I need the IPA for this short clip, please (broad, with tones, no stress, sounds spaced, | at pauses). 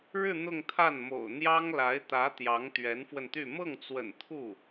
ɻ ɻ̩˥˧ n̪ ʊ˥˧ ŋ t̪ʰ a˥˩ n m o̰˨˩ ʊ̯ n̪ j ɑ˥ ŋ l a˧˥ ɪ̯ t̪ ä˧˥ t̪ j ɑ˧˥ ŋ t̪ ɥ ɛ˧˥ n f w ə˧ n t̪ y˥˧ m ɤ˥˩ ŋ t͡s w ə̰˨˩ n t̪ʰ u˥˩